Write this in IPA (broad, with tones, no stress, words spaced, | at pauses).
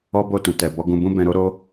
ɔ˦bo˦˨tũ˨ tɛ˨ bɔ˨˦ɡũ˧bũ˦ bɛ̃˧ɾo˦ɾo˦